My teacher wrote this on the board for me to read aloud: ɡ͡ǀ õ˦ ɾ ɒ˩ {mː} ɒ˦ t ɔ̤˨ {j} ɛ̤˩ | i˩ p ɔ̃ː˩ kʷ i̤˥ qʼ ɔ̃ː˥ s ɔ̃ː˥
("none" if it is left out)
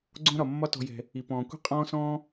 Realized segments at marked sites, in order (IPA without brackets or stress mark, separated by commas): mː, j